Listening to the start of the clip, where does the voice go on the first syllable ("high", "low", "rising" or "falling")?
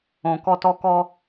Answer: low